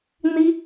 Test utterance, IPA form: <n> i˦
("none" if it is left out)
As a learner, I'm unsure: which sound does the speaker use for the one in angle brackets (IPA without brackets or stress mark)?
n